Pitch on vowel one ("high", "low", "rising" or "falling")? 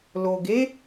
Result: low